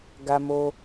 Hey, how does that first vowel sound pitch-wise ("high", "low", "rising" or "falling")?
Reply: high